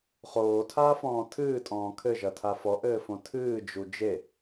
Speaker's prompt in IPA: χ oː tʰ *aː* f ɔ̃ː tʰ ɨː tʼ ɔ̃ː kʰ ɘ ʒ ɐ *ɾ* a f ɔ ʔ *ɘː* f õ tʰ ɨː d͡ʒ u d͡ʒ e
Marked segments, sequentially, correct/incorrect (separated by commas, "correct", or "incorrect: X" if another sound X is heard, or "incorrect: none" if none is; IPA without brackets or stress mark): correct, incorrect: tʰ, correct